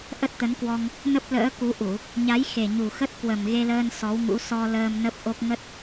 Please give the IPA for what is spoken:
ʔə˦˥t̚t̪ə˨˦nkwɔ˧ŋ | nə˦˥p̚lə̰ː˧˥ ku˨˦ʔu˧˩˨ | ɲa˨˦j xe˨˩ɲu˨˩xə˦˥t̚kwə˨˩m ɣe˧ləː˧n sɔ˨˦wŋṵ˧˥ sɔ˧ ləː˧mnə˦˥p̚ʔo˦˥k̚ ŋə˦˥t̚

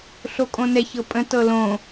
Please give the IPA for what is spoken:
ɬokʼõnɛç ɤpʼə̃ tɤlõ

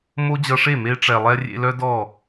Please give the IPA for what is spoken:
mo˦d͡ʑʌ˧ʂe˦˨ me˧ʈ͡ʂɛ˨lˠɛ˧ rʲḛ˧lœ˦ dɔ˦˨

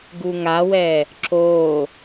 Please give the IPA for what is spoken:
ɡuŋawɛ | ǁo

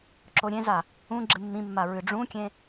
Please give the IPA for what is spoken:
ǁoɾʲẽza | ũ ɡ͡ǁɨmːĩmːa ɹɨɖ͡ʐũkʲẽ

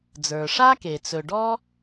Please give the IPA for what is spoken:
d͡zə˞˩ ʂa˥ke˩ t͡sɵ˩ɖɔ˥

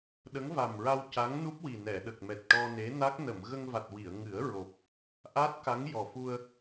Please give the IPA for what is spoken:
ɗə˧˥ŋva˨˩m ɹa˧wca˧˥ŋnu˦˥p̚wi˨˩ nɛ˨˩˨ɗə˨˩k̚mɛ˨˩t̚ʈɔ˧ ne˧˥na˦˥k̚ nə˨˩˨mɣə˧ŋva˨˩t̚ wi˨˩˨ə̯ŋɨ˨˩˦ə̯ ɹo˨˩p̚ | ʔaː˦˥t̚ka˧˥ŋ jɔ˨˩fu˧ə̯

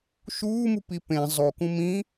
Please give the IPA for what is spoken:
ʃuːmupi pẽ zˤokũ mĩ

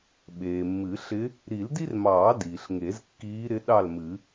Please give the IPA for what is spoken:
ɓeː˩mːɨ˨˩˦ɬɪ˧˥ | ɾi˨˩˦ldi˥rmɑː˨˩˦ diː˩ɬŋe˨˩˦zkːiː˧˥ɾɪ˧˥ ɗɑ˥˨lmɨ˨˩˦

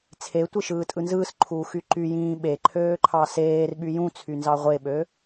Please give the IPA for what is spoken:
t͡sʰetʷi ʃɯːtʼɯnzɯːsǃʰuː xyǃyjĩː ɓeǃʰøː ǃʰɑseːrɓy jũt͡sʰy nzɑʁʷeɓø

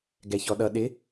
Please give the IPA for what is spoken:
ɡɛçɔɗʌ ɗɪ

